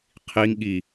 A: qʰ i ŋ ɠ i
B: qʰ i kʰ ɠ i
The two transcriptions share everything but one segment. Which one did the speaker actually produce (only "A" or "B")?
A